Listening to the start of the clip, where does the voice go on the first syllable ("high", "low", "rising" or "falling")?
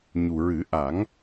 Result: low